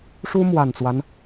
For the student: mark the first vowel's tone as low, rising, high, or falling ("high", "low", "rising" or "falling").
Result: high